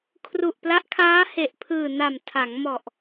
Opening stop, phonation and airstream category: aspirated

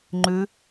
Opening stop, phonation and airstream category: click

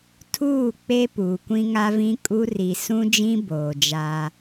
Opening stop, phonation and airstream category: aspirated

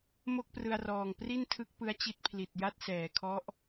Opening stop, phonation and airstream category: plain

